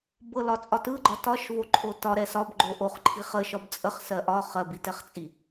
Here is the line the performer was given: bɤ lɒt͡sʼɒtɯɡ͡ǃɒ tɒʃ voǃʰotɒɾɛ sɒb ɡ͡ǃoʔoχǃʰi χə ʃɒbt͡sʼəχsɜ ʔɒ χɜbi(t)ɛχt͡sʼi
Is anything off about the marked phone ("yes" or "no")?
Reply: no